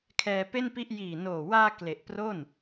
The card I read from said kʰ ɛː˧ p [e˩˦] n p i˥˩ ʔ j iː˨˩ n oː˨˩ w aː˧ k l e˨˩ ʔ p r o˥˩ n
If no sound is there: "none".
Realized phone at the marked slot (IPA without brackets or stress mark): e˥˩